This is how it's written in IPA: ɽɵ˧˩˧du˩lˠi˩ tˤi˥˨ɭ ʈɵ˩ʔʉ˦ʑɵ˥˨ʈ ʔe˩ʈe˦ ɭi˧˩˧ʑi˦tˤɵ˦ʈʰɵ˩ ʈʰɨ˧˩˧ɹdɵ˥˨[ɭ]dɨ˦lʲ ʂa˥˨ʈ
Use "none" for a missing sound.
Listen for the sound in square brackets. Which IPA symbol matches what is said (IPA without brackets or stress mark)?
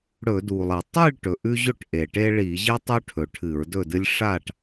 none